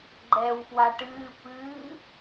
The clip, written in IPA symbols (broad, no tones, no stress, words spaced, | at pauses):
ɡ͡ǃɛːwfwaʈɨː pɨː